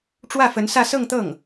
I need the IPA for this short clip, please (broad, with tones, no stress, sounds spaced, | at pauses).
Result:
ʈ͡ʂ w ä˥˩ f ə˧˥ n s ä˥˧ s ɤ˥˧ ŋ t̪ ɤ˥˩ ŋ